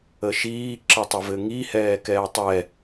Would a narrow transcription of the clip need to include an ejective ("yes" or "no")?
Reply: no